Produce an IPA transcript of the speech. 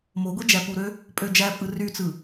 m o ɡʷ i d͡ʒ æ p u ɾ ø | pʼ ø d͡ʒ æ pʼ ɯ r y t͡s ɯ

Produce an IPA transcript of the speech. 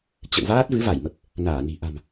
t͡ɕ ə̰˧˨ w v aː˦˥ t̚ v ɨ˨˦ v a˧˩ j m ə˨˩ p̚ | n aː˧˩ n i̤˨˩ ʔ a̤˨˩ m

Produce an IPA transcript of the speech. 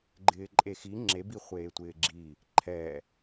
ɡ͡ǃ ɪː ǃʼ e x i ŋ͡ǁ e b i χʷ eː tʷ ɪː ɡ͡ǁ i | ǃʰ ɛ

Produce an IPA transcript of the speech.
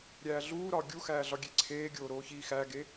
ɾʲ æː ɮ uː ɾ ɒː ɡʲ u x æː ɮ ɒ ɡʲ e ǀʰ eː ɡʲ oː ɾ oː ç iː x æ ɡ e

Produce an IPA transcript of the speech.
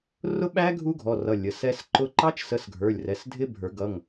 r ʊ˦˥ ɓ æ˦˥ ɡʱ u˦˥ ɡʱ ɔ˩˧˩ r ʌ˩˧˩ lʲ ə˩˧˩ s ɛ˦˥ s ǃ ʊ˦˥ ǃ ɑ˦˥ t͡ʃ s ə˨˦ s ɡʱ ə˞˩˧˩ lʲ r ɛ˩˧˩ s dʱ ɪ˦˥ bʱ ə˞˨˩˦ ɡ ʌ˩˧˩ ŋ

